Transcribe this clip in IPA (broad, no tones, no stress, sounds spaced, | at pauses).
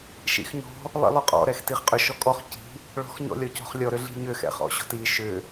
ʃ ḭ x ɲ ɔ̤ | lˠ ḭ lˠ ʏ qʼ ɔ̰ ɾ ɛ x t i χ qʼ ʏ ʃ ɔ kʼ ɔ χ c i̤ | ɭ ɔ̤ x ɲ ɔ̰ lʲ ɔ c ɔ̤ χ lʲ ɔ ɾ ʏ ɮ i̤ ɲ ʏ x ɛ̰ χ ɔ̰ ɕ ɔ̤ t i ʃ ʏ